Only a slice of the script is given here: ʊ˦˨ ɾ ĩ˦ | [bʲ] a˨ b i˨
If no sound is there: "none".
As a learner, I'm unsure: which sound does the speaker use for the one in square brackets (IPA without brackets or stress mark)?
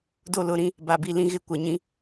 b